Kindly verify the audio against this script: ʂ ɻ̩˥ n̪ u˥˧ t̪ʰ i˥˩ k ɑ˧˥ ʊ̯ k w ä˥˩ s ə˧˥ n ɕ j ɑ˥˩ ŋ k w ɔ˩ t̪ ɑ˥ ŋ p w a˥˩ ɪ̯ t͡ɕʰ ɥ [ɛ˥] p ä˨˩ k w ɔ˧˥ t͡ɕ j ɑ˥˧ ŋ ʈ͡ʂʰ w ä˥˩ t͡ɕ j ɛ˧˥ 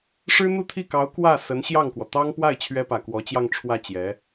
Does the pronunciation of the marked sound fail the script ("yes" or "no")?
no